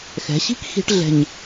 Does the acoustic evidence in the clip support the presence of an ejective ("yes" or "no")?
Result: no